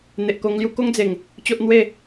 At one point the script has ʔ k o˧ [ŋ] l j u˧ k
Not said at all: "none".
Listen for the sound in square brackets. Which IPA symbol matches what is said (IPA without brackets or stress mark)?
ŋ